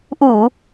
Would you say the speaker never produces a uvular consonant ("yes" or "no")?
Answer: yes